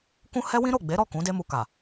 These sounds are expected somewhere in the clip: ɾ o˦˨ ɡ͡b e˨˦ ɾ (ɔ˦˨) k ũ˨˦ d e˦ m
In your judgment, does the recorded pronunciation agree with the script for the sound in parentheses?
yes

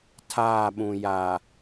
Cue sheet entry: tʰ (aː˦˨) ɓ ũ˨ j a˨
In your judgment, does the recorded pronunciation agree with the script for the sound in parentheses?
yes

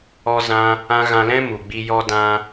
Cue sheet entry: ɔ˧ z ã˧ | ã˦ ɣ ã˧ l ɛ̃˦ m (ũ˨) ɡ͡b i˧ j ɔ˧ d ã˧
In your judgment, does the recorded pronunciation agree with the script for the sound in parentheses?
no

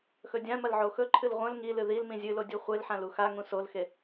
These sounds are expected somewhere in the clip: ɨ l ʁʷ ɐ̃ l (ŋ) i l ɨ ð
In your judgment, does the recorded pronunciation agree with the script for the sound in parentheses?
yes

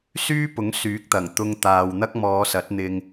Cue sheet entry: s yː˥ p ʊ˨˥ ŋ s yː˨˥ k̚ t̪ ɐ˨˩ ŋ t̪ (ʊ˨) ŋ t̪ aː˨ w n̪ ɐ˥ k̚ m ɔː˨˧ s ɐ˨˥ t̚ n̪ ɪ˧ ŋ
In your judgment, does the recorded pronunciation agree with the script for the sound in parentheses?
no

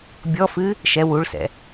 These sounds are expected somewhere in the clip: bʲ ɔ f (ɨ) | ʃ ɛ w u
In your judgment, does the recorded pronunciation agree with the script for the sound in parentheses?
yes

